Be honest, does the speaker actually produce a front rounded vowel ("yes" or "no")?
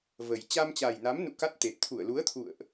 no